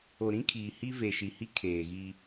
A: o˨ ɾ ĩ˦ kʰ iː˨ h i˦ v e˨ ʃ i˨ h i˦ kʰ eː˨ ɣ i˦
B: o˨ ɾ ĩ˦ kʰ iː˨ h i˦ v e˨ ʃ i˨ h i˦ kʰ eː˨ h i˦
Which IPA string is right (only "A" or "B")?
A